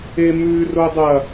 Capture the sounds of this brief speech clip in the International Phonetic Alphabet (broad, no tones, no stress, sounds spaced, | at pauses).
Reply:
e m ʉ r o dˤ ɐ